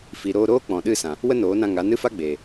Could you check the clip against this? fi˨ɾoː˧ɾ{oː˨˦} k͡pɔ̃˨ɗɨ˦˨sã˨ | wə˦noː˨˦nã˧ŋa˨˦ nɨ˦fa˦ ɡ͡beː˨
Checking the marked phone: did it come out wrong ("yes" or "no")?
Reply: yes